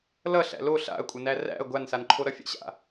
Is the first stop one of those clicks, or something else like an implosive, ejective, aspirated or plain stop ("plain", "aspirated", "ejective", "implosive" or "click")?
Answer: ejective